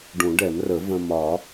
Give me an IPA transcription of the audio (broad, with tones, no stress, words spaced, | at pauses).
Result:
ɖũ˨˩˦ɖɛ˨˩˦mrə˨˩˦ və̃˧ mɒ˨˩˦